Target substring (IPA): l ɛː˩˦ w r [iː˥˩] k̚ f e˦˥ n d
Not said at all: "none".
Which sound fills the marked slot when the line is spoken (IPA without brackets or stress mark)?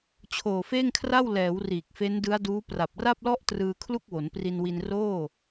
iː˨˩